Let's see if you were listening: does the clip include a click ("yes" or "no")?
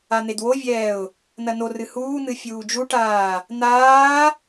no